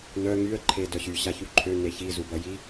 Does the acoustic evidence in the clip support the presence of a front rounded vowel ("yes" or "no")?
yes